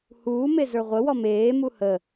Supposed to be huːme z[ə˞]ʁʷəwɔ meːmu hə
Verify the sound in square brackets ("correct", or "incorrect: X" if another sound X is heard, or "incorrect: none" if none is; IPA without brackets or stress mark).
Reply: correct